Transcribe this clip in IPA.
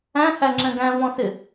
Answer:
æ̃ h æ ŋ͡ǁ ɛ̃ ɡ æ̃ v ɔ̃ s ɪ

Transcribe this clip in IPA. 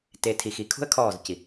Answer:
t e˨ tʰ i˨ x i˨ kʰ ṳ˦ ə̯ kʰ ɔː˦˨ z c i˨

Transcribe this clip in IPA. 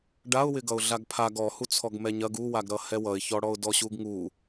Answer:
ɖ a ʊ̯ w ɪ ɡ ʌ ʊ̯ ɮ a ɡ pʰ a ɡ ɔ h u t͡sʰ ɔ ɡ m ɛ ɲ ɐ ɡ u w a ɡ ɾ ʌ h ɛ w ʌ ɪ̯ ç ɔ ɽ ɔ ʊ̯ d ɔ ɕ u ɡ ŋ u

